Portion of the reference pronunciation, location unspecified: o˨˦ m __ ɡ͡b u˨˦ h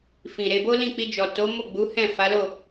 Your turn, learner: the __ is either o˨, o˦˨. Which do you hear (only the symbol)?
o˦˨